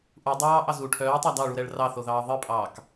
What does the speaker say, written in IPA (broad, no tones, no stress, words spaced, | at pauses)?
ʔu dˤɑːʔɑz u ʈʰœːtˤɑ dɑɭuɾɛɭ rɑθoðɑː ðˤɨpʼɑːk